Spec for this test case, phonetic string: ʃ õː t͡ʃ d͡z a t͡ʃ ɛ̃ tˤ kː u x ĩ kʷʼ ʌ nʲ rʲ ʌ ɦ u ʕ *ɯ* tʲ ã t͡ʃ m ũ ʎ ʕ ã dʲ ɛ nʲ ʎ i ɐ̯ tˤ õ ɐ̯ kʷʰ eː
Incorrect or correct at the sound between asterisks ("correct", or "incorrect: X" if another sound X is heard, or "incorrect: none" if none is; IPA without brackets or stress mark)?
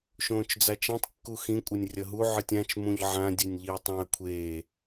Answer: correct